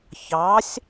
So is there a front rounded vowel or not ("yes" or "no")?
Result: no